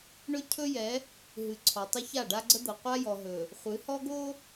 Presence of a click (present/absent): present